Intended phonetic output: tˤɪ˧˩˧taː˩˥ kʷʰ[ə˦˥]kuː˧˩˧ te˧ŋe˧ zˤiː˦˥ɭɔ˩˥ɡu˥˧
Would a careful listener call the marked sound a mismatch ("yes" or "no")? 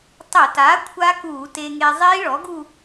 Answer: yes